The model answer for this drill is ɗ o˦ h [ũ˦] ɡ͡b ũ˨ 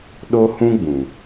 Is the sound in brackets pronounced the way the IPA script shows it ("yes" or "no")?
yes